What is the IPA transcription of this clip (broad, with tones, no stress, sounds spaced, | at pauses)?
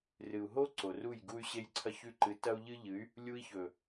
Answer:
r ɨ˨ u̯ ɦ o˦ ǀ o˨ r u˦˨ j ɡ u˦ y̯ ɕ e˦ j ǀʰ ɐ˦ ç ʉ˦ ǃ ɨ˨˦ t ɐ˦ u̯ ʎ ɨ˦ ʎ ɨ˨˦ y̯ | lʲ u˦ i̯ ç ɵ˨